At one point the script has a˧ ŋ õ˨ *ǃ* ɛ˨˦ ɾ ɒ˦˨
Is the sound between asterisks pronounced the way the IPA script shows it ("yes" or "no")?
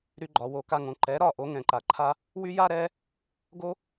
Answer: yes